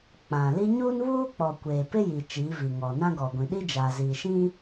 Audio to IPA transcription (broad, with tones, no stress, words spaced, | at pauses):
k͡pã˨li˦ ɲuː˦nβuː˦k͡pɔ˨ kʷeː˨pɪ˦ji˨ t͡ʃiː˨˦vi˨ŋɔ˨ nã˦ɡɔ˨ɡʷĩ˨ ɗi˦d͡ʒaː˨ ziː˨ʃĩ˦